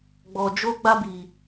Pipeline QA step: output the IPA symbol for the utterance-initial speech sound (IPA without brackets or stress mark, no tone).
ɡ͡b